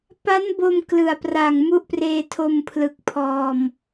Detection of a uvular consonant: absent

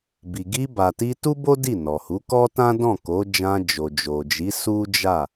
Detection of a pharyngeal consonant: absent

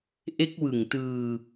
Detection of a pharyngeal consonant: absent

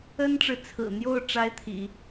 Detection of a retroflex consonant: present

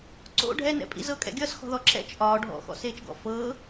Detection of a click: present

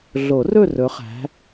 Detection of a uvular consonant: present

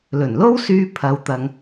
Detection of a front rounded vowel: present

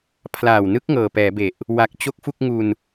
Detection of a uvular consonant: absent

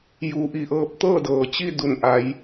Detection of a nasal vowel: absent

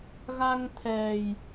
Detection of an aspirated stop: present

